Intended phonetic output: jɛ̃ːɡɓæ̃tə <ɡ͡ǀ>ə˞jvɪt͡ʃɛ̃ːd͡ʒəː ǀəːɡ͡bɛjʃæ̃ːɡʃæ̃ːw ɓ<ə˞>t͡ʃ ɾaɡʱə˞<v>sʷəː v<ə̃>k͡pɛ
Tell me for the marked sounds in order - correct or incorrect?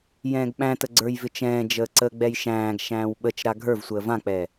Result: correct, incorrect: ə, correct, incorrect: ã

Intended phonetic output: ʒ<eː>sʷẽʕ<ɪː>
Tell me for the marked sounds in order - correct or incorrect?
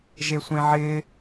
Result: incorrect: e, correct

